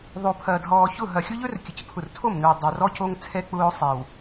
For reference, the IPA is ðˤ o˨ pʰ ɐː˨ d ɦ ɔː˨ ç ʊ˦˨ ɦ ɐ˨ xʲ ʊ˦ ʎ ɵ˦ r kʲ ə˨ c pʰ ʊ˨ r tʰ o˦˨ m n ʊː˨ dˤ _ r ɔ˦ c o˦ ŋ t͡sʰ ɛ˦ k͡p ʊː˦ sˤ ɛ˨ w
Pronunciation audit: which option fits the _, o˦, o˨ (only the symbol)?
o˨